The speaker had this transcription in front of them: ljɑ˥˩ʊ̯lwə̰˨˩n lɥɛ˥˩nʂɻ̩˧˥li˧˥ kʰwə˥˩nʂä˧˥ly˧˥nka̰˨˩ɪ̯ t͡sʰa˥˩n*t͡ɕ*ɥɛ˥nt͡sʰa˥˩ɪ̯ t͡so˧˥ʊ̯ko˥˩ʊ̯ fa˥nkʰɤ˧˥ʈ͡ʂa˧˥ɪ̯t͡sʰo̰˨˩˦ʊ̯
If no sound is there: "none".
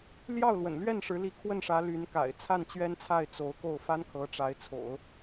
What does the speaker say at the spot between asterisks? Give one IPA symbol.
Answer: t͡ɕ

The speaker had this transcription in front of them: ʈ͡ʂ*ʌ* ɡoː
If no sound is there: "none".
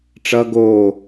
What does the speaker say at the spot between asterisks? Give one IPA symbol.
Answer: ʌ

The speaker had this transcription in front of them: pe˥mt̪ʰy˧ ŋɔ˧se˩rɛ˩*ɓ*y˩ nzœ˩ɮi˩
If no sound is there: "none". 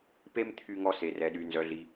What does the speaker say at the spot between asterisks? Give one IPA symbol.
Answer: ɗ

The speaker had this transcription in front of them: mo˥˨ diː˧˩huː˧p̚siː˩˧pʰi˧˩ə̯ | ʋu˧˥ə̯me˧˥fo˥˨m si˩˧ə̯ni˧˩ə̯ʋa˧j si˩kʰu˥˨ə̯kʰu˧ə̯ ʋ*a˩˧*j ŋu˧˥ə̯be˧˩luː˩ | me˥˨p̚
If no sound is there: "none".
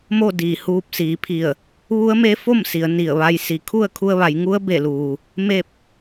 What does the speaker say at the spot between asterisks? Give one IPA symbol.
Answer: a˩˧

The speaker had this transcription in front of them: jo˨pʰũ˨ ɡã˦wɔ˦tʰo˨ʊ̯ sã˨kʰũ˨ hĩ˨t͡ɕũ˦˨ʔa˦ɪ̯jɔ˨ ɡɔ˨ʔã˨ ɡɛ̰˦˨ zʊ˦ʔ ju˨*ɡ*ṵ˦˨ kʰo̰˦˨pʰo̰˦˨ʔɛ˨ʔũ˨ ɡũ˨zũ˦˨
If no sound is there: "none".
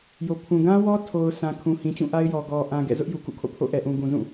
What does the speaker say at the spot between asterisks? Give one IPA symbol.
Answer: k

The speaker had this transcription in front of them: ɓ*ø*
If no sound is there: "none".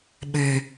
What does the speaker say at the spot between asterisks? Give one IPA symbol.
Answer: ø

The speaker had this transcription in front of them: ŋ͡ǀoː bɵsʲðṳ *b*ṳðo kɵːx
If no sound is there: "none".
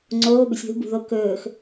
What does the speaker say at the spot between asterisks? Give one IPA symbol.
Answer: b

